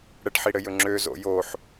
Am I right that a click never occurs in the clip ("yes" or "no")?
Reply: no